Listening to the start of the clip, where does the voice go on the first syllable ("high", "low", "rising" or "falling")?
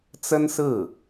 high